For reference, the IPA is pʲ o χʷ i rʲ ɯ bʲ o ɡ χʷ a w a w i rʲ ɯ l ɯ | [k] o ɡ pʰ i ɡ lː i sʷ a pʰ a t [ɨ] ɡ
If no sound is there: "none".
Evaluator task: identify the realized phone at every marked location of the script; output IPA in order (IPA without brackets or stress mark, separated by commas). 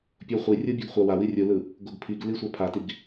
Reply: ɡ, i